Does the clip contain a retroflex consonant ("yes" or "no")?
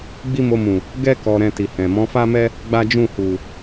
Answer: no